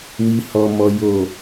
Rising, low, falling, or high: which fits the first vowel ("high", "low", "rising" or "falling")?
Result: low